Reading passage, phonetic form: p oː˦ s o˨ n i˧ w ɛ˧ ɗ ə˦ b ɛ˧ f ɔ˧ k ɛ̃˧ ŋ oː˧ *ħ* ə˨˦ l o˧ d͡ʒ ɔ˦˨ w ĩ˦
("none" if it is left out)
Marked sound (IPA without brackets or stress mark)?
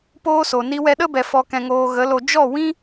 ɣ